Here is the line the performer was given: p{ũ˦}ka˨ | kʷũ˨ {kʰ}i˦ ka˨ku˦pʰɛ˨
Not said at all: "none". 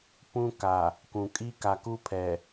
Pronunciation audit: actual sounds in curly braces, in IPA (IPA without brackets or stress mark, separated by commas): ũ˦, kʼ